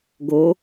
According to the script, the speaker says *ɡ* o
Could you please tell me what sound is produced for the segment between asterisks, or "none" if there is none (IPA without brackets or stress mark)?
ɡ